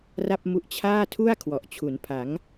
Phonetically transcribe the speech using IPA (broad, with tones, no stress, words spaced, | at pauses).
ra˥˩p̚mu˦˥ʔ t͡ɕʰaː˥˩tʰu˥˩a̯ kʰwɔ˨˩ʔt͡ɕʰu˩˦npʰa˩˦ŋ